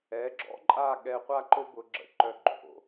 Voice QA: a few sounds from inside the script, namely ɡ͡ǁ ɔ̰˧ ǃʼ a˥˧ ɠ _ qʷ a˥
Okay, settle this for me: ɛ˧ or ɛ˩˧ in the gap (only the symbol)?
ɛ˧